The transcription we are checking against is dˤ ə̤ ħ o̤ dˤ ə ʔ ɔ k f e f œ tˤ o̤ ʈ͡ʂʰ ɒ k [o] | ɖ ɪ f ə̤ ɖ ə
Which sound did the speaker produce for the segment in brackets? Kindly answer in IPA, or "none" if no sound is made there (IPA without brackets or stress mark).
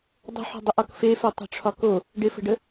o